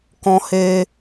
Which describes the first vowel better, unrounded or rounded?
rounded